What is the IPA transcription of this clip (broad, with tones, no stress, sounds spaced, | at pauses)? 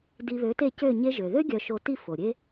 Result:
d i˧ β ø˨˥ t e˥˧ c ø˥˧ ɲ e˧ ʒ ø˩ ð ø˥ ɡʲ œ˧ ʃ o˧ t i˥˧ f o˩ ɾʲ e˥